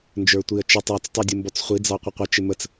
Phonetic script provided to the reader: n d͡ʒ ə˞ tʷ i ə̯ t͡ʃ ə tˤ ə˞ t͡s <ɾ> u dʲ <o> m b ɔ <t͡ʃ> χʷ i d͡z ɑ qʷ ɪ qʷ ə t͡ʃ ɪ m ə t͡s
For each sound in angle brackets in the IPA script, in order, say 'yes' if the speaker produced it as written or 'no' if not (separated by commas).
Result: no, no, no